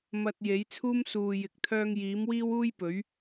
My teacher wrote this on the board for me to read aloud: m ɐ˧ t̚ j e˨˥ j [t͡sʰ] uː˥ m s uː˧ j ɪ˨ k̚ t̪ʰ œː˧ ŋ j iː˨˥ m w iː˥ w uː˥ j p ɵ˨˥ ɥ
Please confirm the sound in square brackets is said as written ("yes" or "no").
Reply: yes